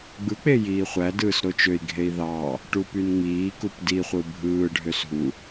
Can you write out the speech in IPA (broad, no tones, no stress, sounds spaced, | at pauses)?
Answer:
ɡ͡b ɯ k͡p e j iː χʷ æ d ɯː s ɾ o t͡ʃ ø i̯ ɡʱ e i̯ ð ɑ | ʈ u p y n ŋ͡m iː k u p d i χʷ ɯ bʱ ɯː ɖʱ ø s ɦ u